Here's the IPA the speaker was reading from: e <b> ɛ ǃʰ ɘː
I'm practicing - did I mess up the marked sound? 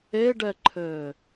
yes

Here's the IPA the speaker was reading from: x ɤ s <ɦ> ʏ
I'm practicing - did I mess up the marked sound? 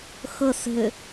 no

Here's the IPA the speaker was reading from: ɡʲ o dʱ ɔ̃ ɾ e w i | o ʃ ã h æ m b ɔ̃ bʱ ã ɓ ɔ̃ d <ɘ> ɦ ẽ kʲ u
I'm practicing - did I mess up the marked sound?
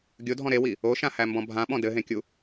no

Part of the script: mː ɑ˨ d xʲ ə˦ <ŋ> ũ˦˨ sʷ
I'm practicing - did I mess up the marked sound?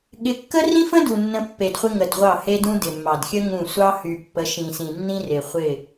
no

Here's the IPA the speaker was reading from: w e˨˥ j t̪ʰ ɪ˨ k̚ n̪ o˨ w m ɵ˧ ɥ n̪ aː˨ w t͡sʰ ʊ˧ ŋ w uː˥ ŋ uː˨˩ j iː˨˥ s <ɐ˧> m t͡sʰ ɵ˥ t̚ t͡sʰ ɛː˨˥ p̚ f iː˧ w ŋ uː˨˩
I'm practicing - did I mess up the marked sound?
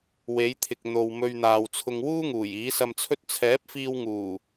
no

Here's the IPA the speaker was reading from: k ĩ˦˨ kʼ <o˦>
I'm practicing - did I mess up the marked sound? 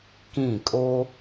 no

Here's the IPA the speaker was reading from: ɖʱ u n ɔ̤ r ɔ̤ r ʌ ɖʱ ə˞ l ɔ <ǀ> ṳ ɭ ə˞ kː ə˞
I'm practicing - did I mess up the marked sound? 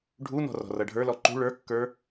yes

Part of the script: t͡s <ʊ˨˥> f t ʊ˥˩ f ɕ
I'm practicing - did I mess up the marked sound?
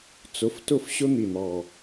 no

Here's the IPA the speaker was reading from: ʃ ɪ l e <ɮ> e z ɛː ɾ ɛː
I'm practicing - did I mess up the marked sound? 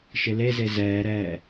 yes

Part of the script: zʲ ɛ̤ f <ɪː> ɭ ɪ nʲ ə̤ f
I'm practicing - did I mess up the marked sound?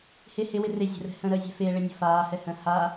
no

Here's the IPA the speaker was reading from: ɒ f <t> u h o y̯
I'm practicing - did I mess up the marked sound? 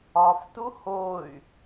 no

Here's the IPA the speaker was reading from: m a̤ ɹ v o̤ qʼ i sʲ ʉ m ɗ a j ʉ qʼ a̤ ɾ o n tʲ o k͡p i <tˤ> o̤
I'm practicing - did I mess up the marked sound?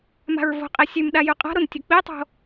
no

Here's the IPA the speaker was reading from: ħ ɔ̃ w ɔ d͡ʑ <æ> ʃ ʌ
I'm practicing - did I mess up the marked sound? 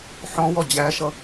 no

